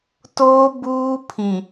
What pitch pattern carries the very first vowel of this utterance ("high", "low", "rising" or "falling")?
high